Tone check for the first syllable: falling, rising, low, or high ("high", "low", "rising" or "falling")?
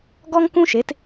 high